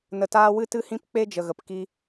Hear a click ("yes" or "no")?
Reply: no